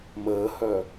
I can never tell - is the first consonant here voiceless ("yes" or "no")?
no